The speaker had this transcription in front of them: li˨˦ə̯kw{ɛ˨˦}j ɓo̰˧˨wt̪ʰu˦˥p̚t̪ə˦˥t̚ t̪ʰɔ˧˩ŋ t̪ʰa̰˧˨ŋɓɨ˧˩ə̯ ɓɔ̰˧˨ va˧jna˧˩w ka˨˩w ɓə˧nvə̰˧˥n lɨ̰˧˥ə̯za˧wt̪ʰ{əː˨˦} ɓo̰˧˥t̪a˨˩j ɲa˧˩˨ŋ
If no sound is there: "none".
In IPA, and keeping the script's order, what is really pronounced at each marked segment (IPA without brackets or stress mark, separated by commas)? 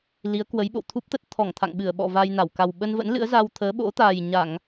ə˨˦, əː˨˦